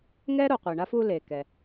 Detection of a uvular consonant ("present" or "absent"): present